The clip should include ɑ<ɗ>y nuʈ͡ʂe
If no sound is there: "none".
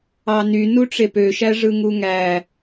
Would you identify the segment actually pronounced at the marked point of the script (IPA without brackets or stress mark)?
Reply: n